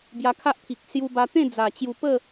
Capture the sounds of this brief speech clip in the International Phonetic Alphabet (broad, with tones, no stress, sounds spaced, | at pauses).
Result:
b j a˧ kʰ a˦ ʔ t̪ʰ i˨ k̚ s j u˧ b a˧ t̪ ẽ˥˧ d͡z a˨˩ t͡ɕ j u˧ p ə˥˧